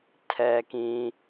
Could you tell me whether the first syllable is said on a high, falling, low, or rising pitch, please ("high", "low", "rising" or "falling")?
low